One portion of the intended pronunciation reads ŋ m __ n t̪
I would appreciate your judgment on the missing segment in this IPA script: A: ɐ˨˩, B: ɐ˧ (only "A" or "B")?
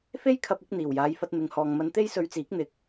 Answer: B